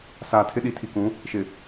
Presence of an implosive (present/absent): present